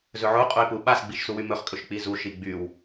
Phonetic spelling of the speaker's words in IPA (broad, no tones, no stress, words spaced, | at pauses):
zɵʕo qʼoɪ̯pu ɓas ɡ͡biʃsuwymɵχ kʼɵʃk͡pizu ʃiɡ͡byw